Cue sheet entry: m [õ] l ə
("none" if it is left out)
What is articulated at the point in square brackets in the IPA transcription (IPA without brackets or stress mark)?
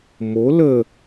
o